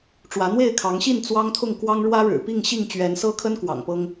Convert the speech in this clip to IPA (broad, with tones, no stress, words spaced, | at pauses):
ʈ͡ʂwä˨˦n̪we˥˨ɪ̯kʰɑ˨˦ŋɕi˥˨n t͡swɑ˦ŋt̪ʰʊ˥˨ŋkwɑ˦ŋ ɻwä˦ɻɻ̩˨˩pi˥˨ŋ ɕi˥˨ŋt͡ɕɥɛ˨˦nsɤ˦kʰə˦n kwɑ̰˨˩ŋpɤ˦ŋ